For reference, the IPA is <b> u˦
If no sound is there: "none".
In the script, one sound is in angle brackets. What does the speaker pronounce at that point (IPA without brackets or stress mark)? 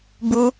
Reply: b